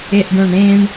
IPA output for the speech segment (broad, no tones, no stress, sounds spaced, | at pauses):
e ʔ ɖ õ ɳ ɾ ẽ ɳ